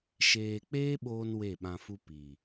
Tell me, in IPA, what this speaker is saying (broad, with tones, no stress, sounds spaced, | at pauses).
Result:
ʃ eː˨ k͡p eː˦ ɓ oː˧ n w e˦˨ ɓ ã˧ f u˦ p i˨